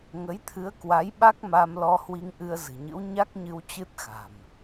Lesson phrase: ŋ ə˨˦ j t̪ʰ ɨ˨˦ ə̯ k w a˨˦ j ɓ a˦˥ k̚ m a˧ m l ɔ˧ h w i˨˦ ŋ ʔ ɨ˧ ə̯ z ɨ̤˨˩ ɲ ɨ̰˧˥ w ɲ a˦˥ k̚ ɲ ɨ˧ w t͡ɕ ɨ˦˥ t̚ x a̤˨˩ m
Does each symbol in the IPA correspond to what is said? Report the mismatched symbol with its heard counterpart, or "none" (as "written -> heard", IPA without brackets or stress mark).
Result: i˨˦ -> i˧